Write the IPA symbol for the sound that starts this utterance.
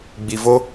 ɡ͡b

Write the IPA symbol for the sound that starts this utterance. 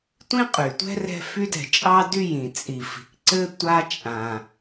tʷ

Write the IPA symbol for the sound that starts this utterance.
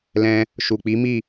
l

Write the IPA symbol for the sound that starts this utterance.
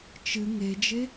t͡ʃ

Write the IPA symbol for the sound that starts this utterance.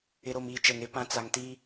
ɪ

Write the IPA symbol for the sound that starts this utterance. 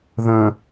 ð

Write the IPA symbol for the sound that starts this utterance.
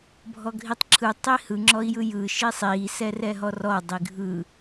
bʱ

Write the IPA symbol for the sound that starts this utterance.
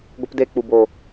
ɡʷ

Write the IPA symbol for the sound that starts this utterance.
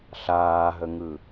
ɬ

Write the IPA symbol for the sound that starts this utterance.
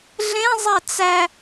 ɮ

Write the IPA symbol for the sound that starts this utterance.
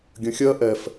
ɡʲ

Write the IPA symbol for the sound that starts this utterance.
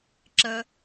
ǁ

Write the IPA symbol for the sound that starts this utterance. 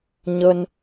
ɲ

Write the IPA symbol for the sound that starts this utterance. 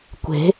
kʷ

